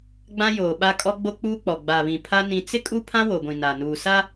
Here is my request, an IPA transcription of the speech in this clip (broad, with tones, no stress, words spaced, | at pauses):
ɡ͡bã˦joː˨ɓa˦kʼɔ˦ ɡ͡bo˦k͡puː˦k͡pɔ˨ ɡ͡ba˨ βĩ˨pʰa˦ nĩ˦ t͡sɪ˦ kʼu˦pʰã˦wo˨ɡʷĩ˨ na˨nuː˨sa˦